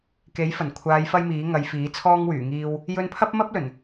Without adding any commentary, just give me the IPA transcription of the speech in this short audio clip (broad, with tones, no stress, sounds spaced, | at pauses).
k e˨˥ j f ɐ˨˩ n kʷʰ aː˨˧ j f ɐ˥ j m iː˨˥ ŋ ɐ˨˧ j f iː˨˥ t͡sʰ ɔː˥ ŋ w yː˨˩ ŋ iː˧ w | j ɵ˧ n pʰ ɐ˥ p̚ m ɐ˥ p̚ l ɵ˨˩ n